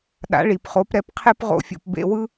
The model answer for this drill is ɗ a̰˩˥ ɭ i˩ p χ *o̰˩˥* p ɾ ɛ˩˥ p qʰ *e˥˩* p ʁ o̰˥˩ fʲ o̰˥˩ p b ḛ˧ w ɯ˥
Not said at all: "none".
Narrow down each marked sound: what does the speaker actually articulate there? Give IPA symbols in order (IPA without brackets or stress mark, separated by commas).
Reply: o˩˥, e˥